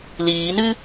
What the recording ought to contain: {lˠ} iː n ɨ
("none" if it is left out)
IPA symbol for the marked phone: l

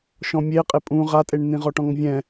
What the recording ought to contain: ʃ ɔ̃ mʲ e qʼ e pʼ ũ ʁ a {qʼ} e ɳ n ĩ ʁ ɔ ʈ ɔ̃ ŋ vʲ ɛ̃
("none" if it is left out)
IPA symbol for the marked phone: tʼ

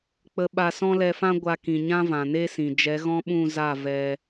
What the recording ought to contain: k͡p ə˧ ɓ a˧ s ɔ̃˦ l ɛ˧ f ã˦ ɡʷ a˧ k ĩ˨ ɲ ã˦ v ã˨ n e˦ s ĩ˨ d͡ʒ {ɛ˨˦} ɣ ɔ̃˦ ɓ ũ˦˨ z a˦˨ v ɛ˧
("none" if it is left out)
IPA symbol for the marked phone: ɛ˨˦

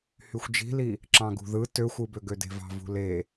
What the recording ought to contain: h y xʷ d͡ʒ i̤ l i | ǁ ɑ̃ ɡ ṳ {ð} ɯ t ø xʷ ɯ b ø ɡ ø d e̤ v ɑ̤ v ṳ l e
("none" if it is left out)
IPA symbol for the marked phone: ð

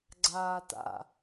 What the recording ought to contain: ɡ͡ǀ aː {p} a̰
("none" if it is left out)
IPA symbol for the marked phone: t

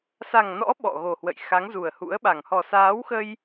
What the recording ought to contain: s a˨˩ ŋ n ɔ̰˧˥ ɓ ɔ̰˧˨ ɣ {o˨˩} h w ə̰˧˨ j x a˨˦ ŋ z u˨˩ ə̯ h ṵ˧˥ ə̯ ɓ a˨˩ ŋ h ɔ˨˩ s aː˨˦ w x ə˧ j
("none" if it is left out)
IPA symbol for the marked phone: o˨˩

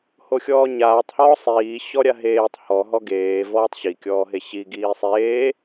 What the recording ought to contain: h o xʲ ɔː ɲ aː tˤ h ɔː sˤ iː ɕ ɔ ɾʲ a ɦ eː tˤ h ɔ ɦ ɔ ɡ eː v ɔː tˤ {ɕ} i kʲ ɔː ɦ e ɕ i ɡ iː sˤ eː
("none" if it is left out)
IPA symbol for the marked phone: ɕ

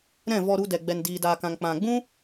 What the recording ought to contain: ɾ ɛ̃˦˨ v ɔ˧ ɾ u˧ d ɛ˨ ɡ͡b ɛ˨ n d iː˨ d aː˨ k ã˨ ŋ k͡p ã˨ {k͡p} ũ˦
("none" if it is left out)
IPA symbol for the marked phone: ɡ͡b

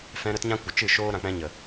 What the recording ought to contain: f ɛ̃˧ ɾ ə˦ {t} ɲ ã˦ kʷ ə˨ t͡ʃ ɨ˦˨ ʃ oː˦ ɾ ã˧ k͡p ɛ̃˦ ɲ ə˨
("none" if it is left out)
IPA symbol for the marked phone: t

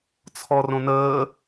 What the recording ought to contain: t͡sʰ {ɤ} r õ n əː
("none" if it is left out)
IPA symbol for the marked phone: ɔ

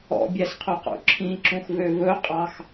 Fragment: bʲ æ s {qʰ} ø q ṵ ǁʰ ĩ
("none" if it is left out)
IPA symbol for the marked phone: qʰ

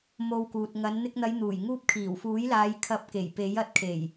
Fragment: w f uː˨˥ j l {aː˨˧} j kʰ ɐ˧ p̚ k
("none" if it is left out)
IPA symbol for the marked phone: aː˨˧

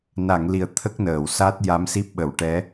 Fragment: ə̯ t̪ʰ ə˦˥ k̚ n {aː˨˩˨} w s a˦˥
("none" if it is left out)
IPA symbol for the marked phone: əː˨˩˨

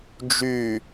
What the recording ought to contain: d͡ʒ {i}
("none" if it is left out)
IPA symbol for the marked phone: y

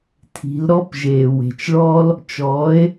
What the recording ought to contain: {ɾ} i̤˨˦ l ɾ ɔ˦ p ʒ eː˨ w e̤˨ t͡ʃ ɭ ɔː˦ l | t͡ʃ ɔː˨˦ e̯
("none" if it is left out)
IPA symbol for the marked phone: tʰ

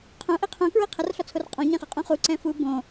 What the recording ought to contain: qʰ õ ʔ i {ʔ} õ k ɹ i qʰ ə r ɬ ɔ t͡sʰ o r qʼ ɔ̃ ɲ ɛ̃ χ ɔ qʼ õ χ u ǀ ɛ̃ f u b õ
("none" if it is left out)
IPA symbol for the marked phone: qʰ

